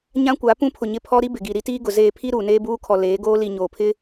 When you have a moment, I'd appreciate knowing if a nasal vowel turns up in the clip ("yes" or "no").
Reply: yes